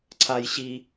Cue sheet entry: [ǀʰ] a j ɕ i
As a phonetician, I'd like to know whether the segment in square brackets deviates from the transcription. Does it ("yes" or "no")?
no